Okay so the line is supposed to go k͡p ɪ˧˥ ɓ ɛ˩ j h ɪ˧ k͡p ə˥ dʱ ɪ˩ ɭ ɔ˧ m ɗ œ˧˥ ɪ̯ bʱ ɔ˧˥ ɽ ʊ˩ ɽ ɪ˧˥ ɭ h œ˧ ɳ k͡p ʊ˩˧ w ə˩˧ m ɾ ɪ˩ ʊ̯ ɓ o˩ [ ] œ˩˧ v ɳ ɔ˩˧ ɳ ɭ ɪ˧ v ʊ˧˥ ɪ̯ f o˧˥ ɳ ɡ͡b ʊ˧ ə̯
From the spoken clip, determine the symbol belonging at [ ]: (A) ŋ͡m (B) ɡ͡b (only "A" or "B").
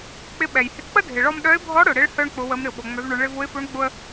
A